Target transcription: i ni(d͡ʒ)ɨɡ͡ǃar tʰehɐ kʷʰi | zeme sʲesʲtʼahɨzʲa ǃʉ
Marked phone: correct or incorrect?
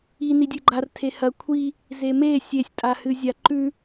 incorrect